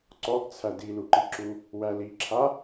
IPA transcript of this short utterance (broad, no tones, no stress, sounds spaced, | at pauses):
ǀ ɔ ɡ t͡sʰ æ d i l u ǃ i ǁ u | w æ l i ǁʰ a